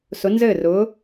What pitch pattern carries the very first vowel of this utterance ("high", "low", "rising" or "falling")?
rising